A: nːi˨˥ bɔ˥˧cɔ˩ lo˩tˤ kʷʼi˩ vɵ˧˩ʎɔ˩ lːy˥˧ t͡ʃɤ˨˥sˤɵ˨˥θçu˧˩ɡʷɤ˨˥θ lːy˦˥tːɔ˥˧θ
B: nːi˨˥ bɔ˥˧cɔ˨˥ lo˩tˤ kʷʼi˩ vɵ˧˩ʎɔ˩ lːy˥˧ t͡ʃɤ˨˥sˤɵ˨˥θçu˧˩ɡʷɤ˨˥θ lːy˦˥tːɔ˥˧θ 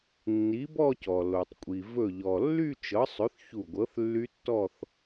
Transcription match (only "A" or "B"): A